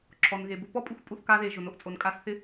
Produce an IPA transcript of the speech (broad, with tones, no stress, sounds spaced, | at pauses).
ǁʰ ɔ˨ n ɣ e˨ b ʊ˧ p ɔ˦ pʼ u˧ xʷ pʼ u˧ θ k a˧ ð e˨ ʒ ʊ˨ n o˨ ʔ t͡sʼ o˨ n kʼ a˧ s θ ɪ˧